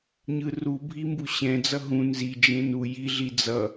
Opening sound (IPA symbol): ɲ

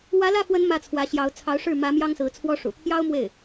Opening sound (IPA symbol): w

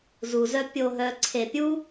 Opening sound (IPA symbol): z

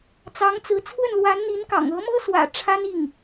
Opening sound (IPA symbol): t͡s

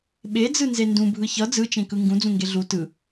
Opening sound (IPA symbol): ɓ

